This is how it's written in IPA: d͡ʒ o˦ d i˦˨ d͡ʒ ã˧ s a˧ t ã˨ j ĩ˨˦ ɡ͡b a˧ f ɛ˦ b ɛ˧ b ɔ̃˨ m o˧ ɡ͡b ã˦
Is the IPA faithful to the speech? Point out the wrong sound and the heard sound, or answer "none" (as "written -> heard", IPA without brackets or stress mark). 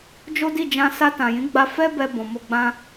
none